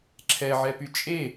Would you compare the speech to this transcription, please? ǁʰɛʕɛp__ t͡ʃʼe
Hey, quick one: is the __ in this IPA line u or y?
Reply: y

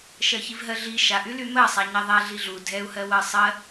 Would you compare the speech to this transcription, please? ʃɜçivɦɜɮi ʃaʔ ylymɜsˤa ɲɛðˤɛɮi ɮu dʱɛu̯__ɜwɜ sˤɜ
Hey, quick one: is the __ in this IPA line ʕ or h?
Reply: h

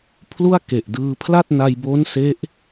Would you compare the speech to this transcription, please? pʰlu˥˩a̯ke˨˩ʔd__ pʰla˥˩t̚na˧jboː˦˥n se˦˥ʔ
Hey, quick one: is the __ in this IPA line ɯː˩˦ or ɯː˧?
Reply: ɯː˧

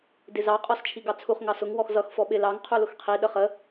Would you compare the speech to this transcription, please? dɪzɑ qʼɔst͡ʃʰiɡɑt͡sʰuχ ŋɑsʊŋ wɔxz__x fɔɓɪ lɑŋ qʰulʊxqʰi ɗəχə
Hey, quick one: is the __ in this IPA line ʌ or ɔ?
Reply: ʌ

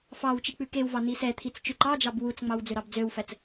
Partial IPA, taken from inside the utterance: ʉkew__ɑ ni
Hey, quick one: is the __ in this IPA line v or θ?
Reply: v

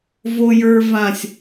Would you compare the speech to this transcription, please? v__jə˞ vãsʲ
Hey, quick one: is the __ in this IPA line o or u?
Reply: o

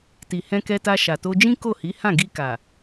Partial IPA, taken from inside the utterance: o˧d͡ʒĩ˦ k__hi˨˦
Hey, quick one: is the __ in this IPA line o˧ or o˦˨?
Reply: o˦˨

